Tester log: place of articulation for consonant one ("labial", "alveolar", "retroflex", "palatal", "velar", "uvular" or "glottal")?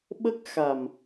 labial